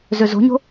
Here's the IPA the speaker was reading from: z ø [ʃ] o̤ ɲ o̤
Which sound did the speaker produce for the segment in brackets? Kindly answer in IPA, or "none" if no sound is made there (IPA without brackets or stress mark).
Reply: z